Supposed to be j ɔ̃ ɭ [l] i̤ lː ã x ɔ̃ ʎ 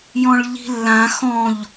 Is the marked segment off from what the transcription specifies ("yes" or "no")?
yes